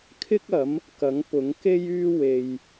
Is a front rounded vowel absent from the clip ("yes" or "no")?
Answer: no